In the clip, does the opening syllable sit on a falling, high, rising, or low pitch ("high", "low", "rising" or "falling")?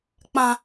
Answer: high